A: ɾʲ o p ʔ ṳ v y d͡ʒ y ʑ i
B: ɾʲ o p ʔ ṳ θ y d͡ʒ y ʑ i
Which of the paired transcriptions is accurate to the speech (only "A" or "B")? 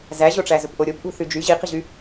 B